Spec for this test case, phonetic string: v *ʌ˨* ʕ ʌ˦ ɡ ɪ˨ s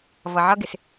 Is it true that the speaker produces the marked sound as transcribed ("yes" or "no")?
yes